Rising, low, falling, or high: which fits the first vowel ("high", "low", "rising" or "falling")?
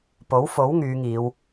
rising